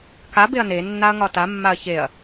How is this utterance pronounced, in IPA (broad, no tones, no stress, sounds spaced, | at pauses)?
k a b e ɐ̯ n e nː a ɐ̯ ŋ ɒ t a mː a ɐ̯ ç e ɐ̯